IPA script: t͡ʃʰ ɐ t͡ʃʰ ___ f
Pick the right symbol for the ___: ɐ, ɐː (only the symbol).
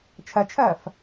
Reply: ɐː